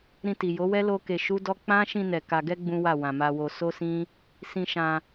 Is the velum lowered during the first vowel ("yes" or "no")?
yes